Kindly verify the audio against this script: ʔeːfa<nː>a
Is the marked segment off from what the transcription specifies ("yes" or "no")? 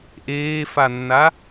no